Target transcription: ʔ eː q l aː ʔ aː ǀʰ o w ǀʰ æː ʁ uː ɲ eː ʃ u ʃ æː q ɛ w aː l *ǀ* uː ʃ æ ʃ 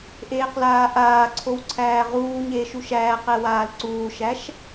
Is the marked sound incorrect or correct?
correct